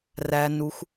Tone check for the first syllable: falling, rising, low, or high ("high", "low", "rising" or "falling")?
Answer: low